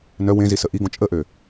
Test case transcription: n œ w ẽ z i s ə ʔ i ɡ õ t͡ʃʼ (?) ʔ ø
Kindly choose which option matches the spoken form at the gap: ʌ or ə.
ə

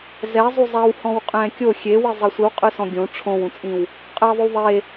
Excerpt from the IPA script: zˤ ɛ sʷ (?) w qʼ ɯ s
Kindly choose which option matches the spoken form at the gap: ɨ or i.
i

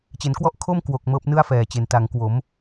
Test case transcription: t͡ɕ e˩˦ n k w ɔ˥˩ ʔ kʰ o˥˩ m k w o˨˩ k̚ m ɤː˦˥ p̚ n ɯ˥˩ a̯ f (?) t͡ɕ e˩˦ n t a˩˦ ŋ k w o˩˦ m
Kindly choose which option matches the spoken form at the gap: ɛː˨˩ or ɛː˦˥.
ɛː˨˩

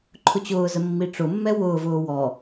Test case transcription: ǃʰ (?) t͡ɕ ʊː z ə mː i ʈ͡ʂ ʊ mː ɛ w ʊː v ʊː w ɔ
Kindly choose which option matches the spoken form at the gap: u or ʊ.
ʊ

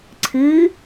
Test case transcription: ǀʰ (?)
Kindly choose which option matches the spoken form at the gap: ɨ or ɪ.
ɨ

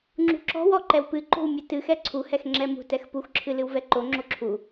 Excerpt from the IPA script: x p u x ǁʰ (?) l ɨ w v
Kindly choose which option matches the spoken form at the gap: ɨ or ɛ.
ɨ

